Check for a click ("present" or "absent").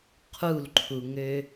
present